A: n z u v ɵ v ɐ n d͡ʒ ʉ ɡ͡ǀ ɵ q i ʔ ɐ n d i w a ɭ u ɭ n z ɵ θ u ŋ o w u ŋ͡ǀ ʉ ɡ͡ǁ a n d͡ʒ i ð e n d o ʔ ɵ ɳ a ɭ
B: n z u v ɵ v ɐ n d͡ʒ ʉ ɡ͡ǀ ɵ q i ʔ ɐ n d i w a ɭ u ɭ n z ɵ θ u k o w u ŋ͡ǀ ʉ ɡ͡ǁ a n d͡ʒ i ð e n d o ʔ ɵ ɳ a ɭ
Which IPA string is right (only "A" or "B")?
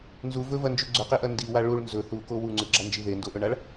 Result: B